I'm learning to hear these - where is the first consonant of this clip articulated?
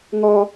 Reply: velum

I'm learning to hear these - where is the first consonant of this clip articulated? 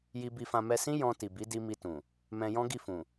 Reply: palate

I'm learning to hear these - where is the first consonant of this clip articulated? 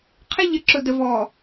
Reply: uvula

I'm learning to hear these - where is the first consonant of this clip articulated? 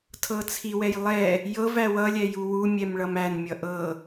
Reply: tongue tip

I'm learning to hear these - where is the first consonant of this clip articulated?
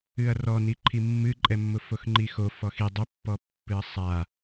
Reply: tongue tip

